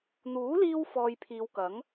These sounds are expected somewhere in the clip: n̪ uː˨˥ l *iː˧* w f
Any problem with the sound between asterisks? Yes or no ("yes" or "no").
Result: no